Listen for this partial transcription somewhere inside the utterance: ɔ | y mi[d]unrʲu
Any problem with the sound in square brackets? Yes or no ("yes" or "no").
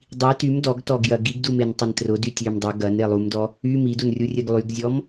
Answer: no